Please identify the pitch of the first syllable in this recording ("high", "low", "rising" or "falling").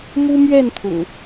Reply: high